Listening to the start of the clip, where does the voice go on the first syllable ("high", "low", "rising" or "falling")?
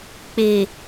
low